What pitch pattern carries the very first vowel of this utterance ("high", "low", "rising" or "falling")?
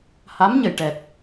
rising